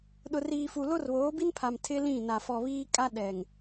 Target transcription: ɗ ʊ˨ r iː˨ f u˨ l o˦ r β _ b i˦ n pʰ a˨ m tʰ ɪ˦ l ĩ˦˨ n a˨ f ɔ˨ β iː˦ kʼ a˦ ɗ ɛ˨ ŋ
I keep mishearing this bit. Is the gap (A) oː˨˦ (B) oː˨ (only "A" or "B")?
A